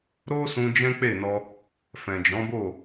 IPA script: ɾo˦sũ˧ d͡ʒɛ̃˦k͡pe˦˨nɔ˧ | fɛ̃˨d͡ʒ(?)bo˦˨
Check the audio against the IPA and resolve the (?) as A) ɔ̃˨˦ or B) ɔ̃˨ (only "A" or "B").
A